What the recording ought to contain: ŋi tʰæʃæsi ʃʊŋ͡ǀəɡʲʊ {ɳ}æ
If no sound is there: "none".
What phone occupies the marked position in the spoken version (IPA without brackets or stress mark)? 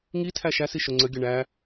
ɳ